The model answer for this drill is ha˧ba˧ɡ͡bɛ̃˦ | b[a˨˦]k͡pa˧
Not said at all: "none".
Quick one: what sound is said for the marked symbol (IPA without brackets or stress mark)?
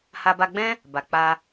a˨